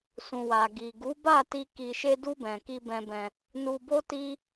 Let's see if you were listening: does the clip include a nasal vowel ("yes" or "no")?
yes